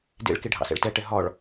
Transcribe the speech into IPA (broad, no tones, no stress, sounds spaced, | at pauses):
d ḛ ɭ k e ɖʱ ɑ̰ s ɛ̰ ɭ t ɛ ʈ ɛ ɦ ɒ ɭ